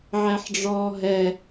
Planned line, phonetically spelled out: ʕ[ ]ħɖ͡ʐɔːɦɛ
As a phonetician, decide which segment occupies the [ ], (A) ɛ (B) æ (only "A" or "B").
B